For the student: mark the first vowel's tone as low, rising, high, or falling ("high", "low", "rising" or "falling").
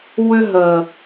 high